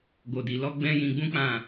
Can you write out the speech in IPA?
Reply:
ɡo˨di˨lɔ˧ ɡ͡bɛ̃˦jĩ˧ ɡ͡bũ˦k͡pã˦˨

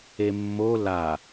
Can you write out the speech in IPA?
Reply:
emːo la

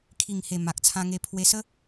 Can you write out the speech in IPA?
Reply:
kʰi˨˩ŋhe˨˩ ma˨k̚t͡sʰã˧ ŋe˧ pʰwe˧sə˦

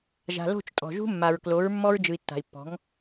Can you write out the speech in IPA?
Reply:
ʒa̤˨lo̤˦˨t͡ʃ tʼɔ̤˨ʒṳ˦mːa˨ɹklo˨˦ɹ mːɔ˦ɹd͡ʒɯ˨i̯tːa̤˨i̯pːɔ̤˨˦ŋ

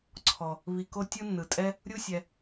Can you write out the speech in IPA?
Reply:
ǀʰɔ˩ | βi˨ko˦ tʲɯ˦nːɯ˩tʼɛ˦ | ɾʲu˦sʲɛ˨

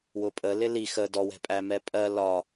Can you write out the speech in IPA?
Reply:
wʊpʼə lɪli xə dɔwɛ̤pʼæ mɛpʼɜ lɒ

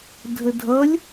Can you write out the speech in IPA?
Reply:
dʱədʱʌlʲ

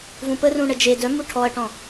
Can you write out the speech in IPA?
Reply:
vũpərũ ɳəd͡ʒe dœmu ʈʰɔɐ̯ʈɔ̃

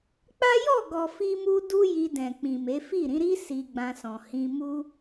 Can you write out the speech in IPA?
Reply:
k͡pa˦jɔ˦˨ ɡɔ˨fi˧mu˧ du˦ji˧dɛ̃˨ k͡pĩ˨me˨˦fi˦˨ ɾĩ˨˦ɾi˦ si˧ɡ͡bã˧sɔ̃˨ hĩ˧ mu˦

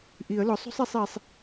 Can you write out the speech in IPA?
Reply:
ʔi˨˩˦ə̯lʊ˨˥ sˤo̤˥sˤe˨˥sˤi˨sˤ

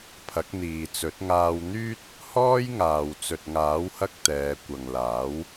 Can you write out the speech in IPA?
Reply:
pʰɐ˨˥k̚n̪iː˨t͡sɵ˨˥t̚ ŋaː˧wn̪yː˥t̚ | hɔː˥jŋaː˨w t͡sɵ˨t̚ŋaː˨˥whɐ˧k̚ t̪ɛː˨˧ kʷɐ˨ŋlaː˨˥w

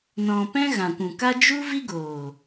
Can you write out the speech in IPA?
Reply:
nɔ̃˧ pɛ̃˦ɣã˨kʷũ˨ka˦ d͡ʒu˦vi˦ɡoː˨

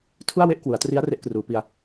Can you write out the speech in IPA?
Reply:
tʰu˥˩a̯we˥˩ʔkwu˩˦a̯tri˦˥a̯ re˦˥ʔkruː˩˦pi˧a̯

